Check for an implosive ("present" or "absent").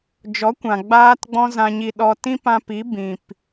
present